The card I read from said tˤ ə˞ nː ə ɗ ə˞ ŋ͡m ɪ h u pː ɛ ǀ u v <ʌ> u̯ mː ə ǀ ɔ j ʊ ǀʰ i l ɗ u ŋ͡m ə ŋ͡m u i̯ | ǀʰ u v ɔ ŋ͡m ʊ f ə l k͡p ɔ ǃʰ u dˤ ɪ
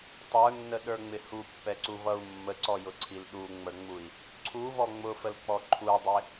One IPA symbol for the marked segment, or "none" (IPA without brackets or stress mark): ʌ